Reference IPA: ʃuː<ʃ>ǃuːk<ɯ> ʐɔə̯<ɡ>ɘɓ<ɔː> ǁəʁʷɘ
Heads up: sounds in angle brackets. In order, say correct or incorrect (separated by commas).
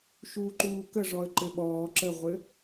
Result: incorrect, incorrect, incorrect, correct